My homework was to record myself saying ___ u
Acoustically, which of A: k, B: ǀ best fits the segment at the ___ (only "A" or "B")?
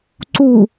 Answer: B